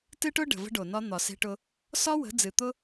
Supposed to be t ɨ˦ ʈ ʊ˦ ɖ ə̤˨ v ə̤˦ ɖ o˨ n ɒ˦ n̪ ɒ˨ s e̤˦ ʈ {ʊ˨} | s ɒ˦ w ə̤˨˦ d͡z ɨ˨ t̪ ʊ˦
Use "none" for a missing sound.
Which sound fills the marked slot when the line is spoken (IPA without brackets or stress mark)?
ʊ˦